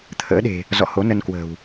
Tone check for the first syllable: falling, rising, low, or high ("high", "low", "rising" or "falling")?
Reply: rising